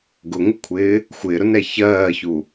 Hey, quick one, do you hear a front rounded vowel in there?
no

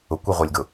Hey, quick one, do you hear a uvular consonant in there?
yes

